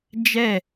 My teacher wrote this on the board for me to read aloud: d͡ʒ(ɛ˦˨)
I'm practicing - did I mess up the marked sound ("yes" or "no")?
no